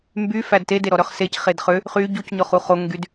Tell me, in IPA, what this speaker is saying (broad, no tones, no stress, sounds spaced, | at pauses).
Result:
m b y f æ d t e d e ɾ ɔ ɾ œ χ s e c χ e d χ ø | χ y ɟ u c ɲ ɔ χ u χ o ŋ ɡ y d